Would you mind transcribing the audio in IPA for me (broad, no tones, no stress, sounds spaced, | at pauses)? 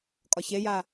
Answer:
kʼ ɒ ç e j a